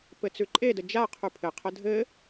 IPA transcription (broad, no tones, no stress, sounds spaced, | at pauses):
p ɘ t͡s ʉ ǃʼ e d ə d͡ʒ a qʰ ʉ pʰ ɘ qʰ ə dʱ ɘ